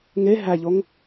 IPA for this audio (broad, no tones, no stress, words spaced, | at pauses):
ŋe ɦæʎoŋ